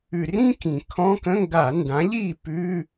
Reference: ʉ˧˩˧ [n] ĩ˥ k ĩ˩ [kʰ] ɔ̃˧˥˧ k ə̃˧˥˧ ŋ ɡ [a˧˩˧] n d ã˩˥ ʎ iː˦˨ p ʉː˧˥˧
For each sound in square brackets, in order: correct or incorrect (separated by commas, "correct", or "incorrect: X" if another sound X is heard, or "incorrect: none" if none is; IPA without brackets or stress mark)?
incorrect: r, correct, correct